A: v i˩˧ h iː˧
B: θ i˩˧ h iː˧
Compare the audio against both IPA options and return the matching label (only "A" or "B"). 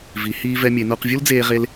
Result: A